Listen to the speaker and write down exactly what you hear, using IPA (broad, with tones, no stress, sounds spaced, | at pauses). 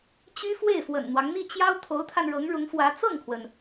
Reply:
t͡ɕ y˥ f w e˥˩ ɪ̯ f w ə̰˨˩ n n̪ w ɑ˦ ŋ n̪ i˥˩ t͡ɕ j ɑ˥ ʊ̯ t̪ʰ o˧˥ ʊ̯ t̪ʰ a˧ n ɻ ɤ˧˥ ŋ ɻ ʊ˧˥ ŋ f w ä˧˥ t͡s ɤ˥˩ ŋ kʰ w ə˩ n